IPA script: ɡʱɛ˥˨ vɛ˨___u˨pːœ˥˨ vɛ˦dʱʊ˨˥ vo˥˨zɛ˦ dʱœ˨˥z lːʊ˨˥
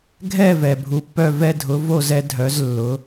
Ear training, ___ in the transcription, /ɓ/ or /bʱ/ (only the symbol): bʱ